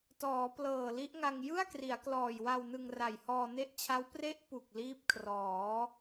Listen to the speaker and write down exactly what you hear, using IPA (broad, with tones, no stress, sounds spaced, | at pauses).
t ɔː˩˦ p l ɤː˨˩ l i˦˥ ʔ ŋ a˧ ŋ j ɯ˥˩ a̯ k r i˩˦ a̯ k l ɔː˨˩ j w a˧ w n ɯ˧ ŋ r a˨˩ j h ɔː˧ n e˦˥ ʔ t͡ɕʰ a˦˥ w p r e˦˥ ʔ p u˨˩ k̚ l iː˦˥ p̚ kʰ r ɔː˩˦